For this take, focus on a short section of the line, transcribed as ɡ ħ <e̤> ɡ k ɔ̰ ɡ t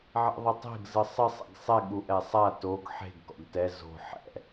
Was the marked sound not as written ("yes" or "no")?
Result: no